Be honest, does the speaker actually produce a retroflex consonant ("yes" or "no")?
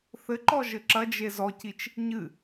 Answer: no